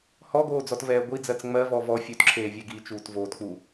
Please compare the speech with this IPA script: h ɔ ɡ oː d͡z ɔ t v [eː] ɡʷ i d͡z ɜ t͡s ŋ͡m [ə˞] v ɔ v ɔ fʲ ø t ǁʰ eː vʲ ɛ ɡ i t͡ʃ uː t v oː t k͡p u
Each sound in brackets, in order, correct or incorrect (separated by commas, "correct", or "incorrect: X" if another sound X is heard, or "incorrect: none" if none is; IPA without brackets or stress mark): incorrect: ɛː, incorrect: ɜ